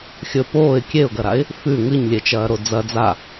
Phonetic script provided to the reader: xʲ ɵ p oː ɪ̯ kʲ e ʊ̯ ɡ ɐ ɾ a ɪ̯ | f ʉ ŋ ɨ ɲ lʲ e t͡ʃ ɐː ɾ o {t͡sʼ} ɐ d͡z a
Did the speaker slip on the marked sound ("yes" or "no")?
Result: yes